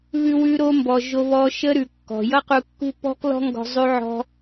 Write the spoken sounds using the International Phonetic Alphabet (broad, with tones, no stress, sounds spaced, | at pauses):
β ʉ˧ w ʉ˧ ɾ o˧ m b ɔ˨ ʒ o˧ β ɔ˧ ʃ ə˦ ɾ ʉ˨ kː ɔ̤˨ j ʌ˦ q u˧ kː ṳ˦ p ɔ̤˦ k l ɔ̤˦ ŋ ɡ ɔ̤˧ zˤ ʉ˧ ʕ ɔ̤˧